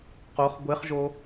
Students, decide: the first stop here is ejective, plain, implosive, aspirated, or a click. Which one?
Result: plain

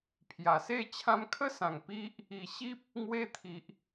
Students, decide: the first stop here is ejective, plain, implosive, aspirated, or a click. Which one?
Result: aspirated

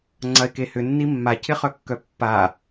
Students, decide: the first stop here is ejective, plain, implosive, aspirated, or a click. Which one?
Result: click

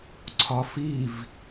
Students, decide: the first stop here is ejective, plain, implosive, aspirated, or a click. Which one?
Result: click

